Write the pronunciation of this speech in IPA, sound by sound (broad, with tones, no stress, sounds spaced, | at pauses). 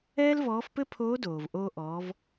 ɛː˥ l v ɔː˧˥ f p ɘ˥ pʰ oː˧˥ d oː˩ v ʔ oː˧ ʔ ɔː˩˧ v